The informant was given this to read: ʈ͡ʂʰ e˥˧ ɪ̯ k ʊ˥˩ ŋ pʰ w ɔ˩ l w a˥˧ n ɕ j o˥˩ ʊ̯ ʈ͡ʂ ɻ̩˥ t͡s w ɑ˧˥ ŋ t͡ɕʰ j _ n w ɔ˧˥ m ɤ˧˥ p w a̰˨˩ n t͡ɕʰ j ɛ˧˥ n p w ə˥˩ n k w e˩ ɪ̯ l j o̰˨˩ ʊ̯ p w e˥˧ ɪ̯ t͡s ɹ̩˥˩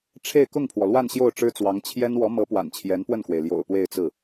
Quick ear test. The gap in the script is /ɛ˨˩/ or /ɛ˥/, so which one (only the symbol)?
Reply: ɛ˥